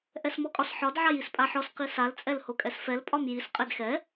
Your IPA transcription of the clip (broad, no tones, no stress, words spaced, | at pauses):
ʔɛsmɔkʼɒsħɒd ʕajispʼaħɔs qisal t͡sʼɛlhokʼɛsfɛl pʼɒmjis qʼɛdxɛ